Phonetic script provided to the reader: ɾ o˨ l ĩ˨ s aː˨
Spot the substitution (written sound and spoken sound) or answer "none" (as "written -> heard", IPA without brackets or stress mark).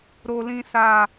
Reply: none